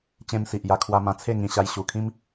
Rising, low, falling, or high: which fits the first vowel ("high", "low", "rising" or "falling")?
high